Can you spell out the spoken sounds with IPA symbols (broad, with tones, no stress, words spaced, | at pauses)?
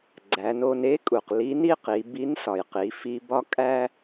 ɡ͡ǀæ˩˧no˧n e˧˥kʼu˩q li˧˥ni˥ qi˩˧ bi˧˥nsɒ˩jqi˩˧ fi˧bɒ˥ kʼæ˥